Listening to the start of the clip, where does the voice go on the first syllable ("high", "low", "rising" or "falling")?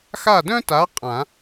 falling